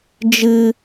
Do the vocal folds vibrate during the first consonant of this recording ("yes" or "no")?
yes